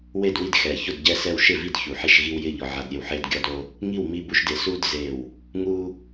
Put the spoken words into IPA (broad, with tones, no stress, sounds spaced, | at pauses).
w e˥˨ d w i˥˨ d x ɛ˧˩ ç ʊ˥˨ d ɟ ɛ˥˨ s ɛ˥˨ w ʃ ɪ˥˨ v i˥˨ d ç u˧˩ ħ e˥˨ ʃ ɣ i˦ w j ɪ˥˨ ʎ ɔ˦ ʕ a˦ d ɾʲ e˥˨ w ħ e˦ d ɡʲ ɔ˦ d o˦ | ŋ i˥˨ w m i˦ b u˦ ʃ d ɪ˧˩ s u˦ d z e˧˩ w | ŋ u˦